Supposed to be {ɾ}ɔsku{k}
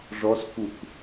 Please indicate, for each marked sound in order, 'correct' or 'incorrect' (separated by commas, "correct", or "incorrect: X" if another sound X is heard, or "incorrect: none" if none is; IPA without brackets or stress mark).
incorrect: ʐ, correct